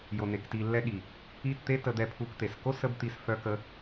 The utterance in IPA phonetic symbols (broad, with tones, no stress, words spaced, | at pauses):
jo˨ne˨k ti˧lːɛ˦ɠi˨ | i˦˨t t̪e˦tə˧d̪ɛ˧ pʰu˧kt̪e˨s ko˦ sə˦bt̪i˧s fœ˧kə˧